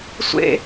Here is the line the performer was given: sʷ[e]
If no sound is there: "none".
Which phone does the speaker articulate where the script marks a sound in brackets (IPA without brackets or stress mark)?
ḛ